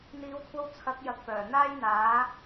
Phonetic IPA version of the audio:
n̪iː˨˧wkʷʰɐ˧w t͡sʰɐ˨˥k̚ jɐ˧k̚pœː˨˩ n̪aː˥jn̪aː˨˥

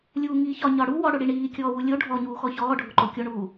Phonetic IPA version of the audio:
lʲuːŋiːçɒ ɲɒɽu wɔ ɽʊɽiɳiː kʲɔːwulʲo ɖʱɔɲuːxɔ çɔːɖʱʊǃo kʲoɳuː

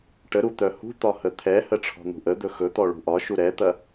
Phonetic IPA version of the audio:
ʈəɾu t̪œhṳt̪ɒ hət̪ʰɛhə ʈ͡ʂʰɔ̤n̪ṳʔəd̪ɵ xɵt̪ɔ ɭṳʔɒʃu ɾɛt̪ɐ

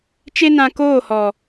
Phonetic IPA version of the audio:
t͡ʃe˦nã˧ koː˦˨hɔ˨

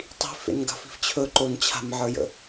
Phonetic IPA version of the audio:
tˤi̤f ḛnɡa̤fi̤ft͡ɕʰɵ ǃont͡ɕʰa̤mʕə˞jə̰

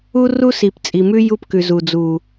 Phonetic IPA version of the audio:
u˦ru˦si˨p t͡sʼi˨mʉ˦ ju˦pkʉ˨ zu˨d͡zu˨

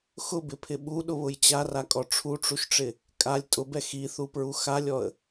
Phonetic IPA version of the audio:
xʊbɪpʰɪ ɓuɗʊβʊj t͡ɕarakʼɔ ʈ͡ʂʰuʈ͡ʂuʃʈ͡ʂɪ | kʼalʲ tʼʊbɛ xiθupɹu xalʲɔə̯

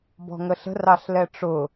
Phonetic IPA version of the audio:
bɔ̤ŋəɬə̤r ɑɬlɛʈ͡ʂʊ

